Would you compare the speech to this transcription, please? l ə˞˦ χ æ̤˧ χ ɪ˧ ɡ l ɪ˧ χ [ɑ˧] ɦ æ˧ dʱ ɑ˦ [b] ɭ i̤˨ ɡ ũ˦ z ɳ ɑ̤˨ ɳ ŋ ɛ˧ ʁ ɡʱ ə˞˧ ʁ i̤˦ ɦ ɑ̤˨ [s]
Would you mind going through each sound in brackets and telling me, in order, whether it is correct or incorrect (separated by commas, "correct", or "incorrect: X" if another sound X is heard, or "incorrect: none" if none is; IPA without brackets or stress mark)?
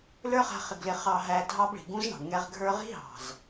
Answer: correct, correct, incorrect: z